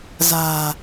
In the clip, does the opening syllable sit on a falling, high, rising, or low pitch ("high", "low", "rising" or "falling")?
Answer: low